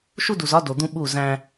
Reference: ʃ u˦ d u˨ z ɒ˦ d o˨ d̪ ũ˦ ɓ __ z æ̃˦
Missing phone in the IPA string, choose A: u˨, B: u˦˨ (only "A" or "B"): B